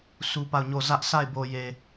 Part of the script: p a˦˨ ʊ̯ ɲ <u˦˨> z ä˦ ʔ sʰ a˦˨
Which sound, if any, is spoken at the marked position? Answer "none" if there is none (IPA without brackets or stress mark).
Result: o˦˨